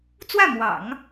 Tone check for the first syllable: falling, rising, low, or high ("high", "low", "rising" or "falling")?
falling